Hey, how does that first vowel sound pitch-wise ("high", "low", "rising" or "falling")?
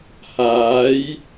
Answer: rising